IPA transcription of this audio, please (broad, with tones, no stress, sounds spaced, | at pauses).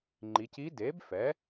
ŋ͡ǃ i˩˧ c i˧˥ d eː˩˥ b f ɛ˩˥